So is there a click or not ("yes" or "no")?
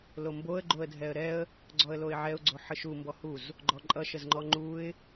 yes